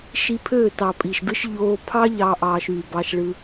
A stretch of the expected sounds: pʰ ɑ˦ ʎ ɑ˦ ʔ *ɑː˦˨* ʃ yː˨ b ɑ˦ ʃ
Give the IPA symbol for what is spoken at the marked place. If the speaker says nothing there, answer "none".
ɑː˧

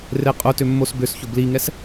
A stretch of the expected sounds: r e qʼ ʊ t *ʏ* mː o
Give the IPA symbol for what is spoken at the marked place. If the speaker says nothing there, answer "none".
ʏ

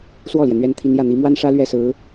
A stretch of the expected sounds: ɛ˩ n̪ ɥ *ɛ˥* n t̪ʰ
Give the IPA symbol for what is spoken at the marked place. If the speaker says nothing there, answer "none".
ɛ˥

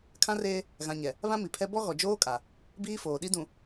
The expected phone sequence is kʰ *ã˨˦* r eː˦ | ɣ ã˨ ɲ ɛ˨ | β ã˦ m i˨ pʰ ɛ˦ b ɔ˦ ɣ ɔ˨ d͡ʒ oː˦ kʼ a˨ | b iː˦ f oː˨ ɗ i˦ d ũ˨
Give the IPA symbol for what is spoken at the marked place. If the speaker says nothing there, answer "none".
ã˦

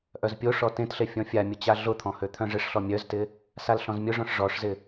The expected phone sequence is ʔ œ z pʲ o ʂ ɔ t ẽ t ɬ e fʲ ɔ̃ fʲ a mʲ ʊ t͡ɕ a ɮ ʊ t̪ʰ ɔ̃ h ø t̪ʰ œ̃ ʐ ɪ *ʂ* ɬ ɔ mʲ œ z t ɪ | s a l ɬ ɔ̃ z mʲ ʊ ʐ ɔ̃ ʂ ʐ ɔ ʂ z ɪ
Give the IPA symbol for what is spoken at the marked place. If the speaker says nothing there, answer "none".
ʂ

